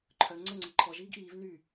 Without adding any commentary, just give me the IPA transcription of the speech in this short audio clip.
ǃʰ œ ŋ͡ǀ ə ŋ͡ǀ i ǃʰ ɔ ʒ iː ɡ ʔ iː v n y

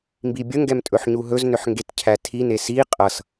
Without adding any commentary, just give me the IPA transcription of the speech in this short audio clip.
m b i bʲ ə ŋ ɡ ɛ m tʼ ɵ ħ ɲ u ɦ ɵ z n ʏ ħ ŋ ɡ e t cʰ æ tʰ i n e s i qʼ ʌ s

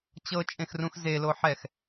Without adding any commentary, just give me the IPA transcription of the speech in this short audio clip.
t͡ɕ ɤ t͡ʃʼ ẽ x r ũ x z e l o ħ ɛ x

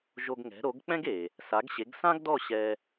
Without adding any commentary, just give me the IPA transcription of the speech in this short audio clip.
ʒ o˧ ɡ ŋ ɛ̤˩˥ ɾ o˩˥ ɡ k͡p ɛ̃˥ ɡ e˩ | s a˩˥ ɡ ɕ e˩˥ ɡ s ã˥ ɡ d ɔ˥˩ ɕ ɛ˧

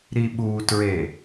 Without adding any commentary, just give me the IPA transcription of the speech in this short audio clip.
ɾ i ɓ u t ɹ e

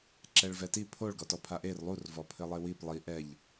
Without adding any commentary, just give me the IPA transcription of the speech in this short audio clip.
ǁ ɛ ɭ v ɛ t i pʰ o ɭ ɡ ɔ t ɔ pʰ a ʔ e r lˠ u r v ɔ pʰ ɘ lˠ e w i p lˠ i ʔ ɛ ʎ

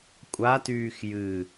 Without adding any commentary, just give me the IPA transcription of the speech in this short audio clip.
kʷʼ a t yː x j ɨ

